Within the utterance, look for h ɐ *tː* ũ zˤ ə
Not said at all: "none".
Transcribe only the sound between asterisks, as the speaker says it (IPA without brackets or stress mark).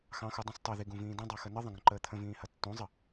tː